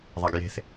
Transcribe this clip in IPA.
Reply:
ðˤ a ɡ j e̤ θ

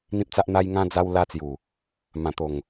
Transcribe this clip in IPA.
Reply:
n̪ ĩ˦ p̚ t͡s a˦ ʔ n̪ a˦ j ŋ ã˦ d͡z a˧ w l a˧ t͡s j u˨˩ | m ã˨˩ t̪ o˨˩ ŋ

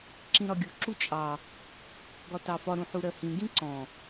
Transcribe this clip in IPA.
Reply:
ǁ ĩ ɾ ɒ ɡʲ u ǁ u t͡ʃʼ ɑ | ɡ ɒ t ɑ f ɒ ɾ ũ ħ u ɾ ɜ h ĩ ɡ ĩ ǀ ɔ̃

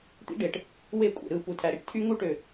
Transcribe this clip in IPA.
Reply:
t̪ ḭ˦ ɖ e˨ ʈ | w e˦ kʷʼ ḛ˨ ɾ ɯ˦˨ p u˨ tʰ æ˨ ɾ i˦ ʈ tʰ y˦ ŋ u˦ ʈ ø˨

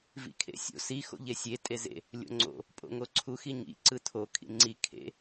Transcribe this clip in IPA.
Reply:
v ḭ kʰ ḛ sʲ o̰ s i x o̰ ʎ e sʲ e tʼ e z ḛ | lʲ o̰ ŋ͡ǀ o̰ | pʼ o̰ ŋ o ǀʰ u x i ɲ ḭ ǀ ɯ tʰ o kʰ ḭ ŋ͡ǀ i kʰ ḛ

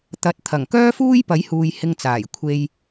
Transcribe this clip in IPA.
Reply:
t̪ ɐ˨˥ t̚ t̪ʰ ɐ˨˩ ŋ k œː˥ f uː˥ j p ɐ˨˥ j h uː˨ j h ɪ˧ ŋ t͡s aː˨˩ j kʷʰ e˧ j

